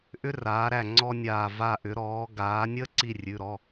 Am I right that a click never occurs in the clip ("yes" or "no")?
no